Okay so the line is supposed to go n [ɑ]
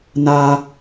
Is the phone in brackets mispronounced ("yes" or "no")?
yes